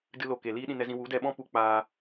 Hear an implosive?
yes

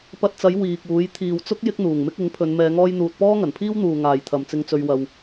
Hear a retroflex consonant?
no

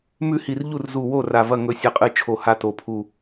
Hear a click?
no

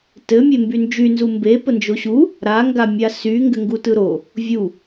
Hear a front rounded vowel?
yes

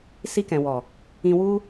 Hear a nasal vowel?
yes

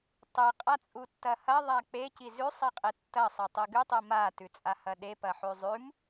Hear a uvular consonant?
yes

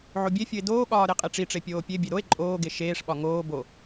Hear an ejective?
yes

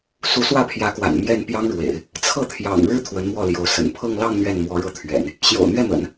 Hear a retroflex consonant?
yes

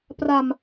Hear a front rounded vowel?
no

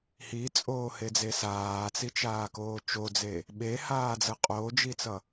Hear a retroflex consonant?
no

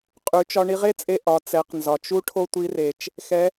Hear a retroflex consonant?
yes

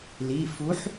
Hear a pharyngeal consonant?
yes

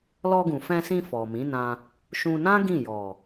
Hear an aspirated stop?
no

